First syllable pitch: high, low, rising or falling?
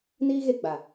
high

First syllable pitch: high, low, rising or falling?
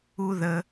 low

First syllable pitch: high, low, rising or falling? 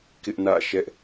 high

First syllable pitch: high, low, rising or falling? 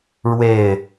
falling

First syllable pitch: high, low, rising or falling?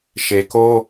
low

